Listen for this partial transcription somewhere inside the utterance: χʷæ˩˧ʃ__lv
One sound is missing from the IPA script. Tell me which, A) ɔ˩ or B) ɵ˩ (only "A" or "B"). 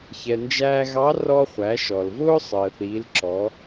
A